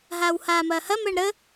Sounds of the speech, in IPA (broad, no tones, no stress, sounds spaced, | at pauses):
ɦ aː w h aː m ɐː h ɐ m əː ɳ ɾ ə